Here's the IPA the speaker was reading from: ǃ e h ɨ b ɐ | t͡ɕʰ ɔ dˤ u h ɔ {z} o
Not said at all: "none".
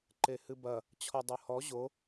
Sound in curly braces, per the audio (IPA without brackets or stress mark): ʑ